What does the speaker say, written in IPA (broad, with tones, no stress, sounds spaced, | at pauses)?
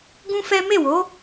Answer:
ɡ ũ˦ f ɛ˦ m e˦˨ w o˨˦